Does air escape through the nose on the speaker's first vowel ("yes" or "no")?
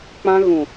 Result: yes